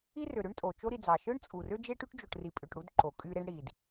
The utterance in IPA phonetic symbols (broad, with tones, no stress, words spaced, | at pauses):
i˥rø˩ ɾø˥ɳtʼo˩ t͡ʃo˦ɾi˨d͡zɑ˩ ʃɯ˥ɳt͡sʼu˩ rø˥d͡ʒe˥ʈy˥ʈ d͡ʒo˨ʈri˨ pʼø˨ʈ ɽu˦dǃo˩ kʼy˦ɾe˥ɳ ɽi˩d